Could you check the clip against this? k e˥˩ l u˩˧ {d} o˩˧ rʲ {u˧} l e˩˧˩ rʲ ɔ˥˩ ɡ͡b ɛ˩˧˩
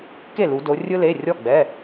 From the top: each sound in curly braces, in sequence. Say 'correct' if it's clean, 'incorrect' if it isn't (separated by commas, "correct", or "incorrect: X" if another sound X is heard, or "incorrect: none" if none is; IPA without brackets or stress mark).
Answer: correct, incorrect: ɯ˧